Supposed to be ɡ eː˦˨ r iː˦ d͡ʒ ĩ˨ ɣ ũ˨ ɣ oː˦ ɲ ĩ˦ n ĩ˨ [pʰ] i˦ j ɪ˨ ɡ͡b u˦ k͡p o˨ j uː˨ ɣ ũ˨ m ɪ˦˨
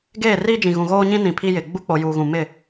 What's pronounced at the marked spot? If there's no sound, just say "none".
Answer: pʰ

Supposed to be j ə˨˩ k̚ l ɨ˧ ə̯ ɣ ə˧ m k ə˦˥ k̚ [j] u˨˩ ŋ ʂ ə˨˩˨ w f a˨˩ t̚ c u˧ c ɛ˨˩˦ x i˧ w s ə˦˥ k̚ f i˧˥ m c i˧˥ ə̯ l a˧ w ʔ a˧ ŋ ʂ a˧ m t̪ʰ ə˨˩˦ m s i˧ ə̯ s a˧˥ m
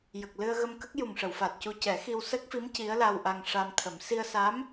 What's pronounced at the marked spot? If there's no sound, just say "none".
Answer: j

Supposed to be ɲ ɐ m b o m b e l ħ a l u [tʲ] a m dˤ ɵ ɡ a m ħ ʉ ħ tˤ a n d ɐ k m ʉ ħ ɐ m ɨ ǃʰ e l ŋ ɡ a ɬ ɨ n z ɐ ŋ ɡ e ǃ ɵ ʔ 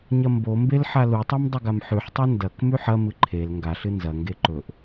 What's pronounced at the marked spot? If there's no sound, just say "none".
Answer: tˤ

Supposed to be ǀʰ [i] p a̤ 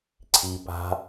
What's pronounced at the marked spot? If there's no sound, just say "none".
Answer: i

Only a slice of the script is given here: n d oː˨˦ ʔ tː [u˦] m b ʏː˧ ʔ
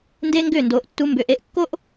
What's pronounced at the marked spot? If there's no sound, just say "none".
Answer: u˦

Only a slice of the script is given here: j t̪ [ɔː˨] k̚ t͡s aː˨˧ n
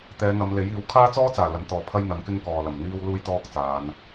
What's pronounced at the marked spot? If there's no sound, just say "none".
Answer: ɔː˥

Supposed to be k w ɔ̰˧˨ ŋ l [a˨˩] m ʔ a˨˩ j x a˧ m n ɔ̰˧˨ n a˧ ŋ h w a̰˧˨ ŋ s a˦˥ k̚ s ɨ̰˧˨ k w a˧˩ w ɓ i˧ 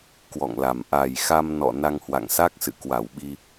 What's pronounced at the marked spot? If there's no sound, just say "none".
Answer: a˨˩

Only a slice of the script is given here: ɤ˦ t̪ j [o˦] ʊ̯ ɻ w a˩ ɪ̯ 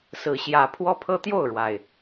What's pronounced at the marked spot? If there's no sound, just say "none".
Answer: o˥˨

